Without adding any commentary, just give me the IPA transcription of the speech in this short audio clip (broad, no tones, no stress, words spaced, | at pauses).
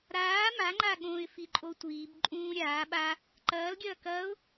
ɾaː maŋ͡ǃa ɠõːɪ̯fiǃʼotʷiːb ǃʼũːɾʲaː ɓa | ǃɐːl ɡʲɐːkɐːʊ̯